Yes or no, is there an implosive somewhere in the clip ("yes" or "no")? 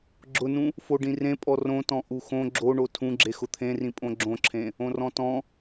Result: no